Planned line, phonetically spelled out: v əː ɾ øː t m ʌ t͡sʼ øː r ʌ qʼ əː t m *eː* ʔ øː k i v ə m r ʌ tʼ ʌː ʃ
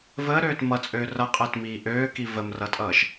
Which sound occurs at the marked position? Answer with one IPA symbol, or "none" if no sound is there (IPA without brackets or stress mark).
iː